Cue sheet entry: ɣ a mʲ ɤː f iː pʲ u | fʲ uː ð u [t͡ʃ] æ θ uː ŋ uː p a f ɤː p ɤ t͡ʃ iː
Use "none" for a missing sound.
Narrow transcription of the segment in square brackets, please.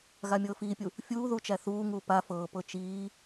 t͡ʃ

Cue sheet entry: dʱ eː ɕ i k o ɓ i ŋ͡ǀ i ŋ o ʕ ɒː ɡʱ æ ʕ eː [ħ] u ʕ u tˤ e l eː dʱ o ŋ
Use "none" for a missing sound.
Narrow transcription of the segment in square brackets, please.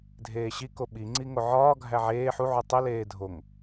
ħ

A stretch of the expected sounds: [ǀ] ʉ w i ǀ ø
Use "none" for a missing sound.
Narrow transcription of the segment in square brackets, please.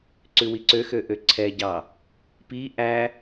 ǀ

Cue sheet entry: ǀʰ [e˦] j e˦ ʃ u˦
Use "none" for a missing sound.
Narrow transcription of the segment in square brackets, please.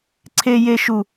e˦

